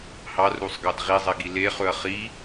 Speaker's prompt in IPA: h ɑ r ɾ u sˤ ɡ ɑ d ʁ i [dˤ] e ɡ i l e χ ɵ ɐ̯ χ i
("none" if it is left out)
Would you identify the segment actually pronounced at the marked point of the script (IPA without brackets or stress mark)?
zˤ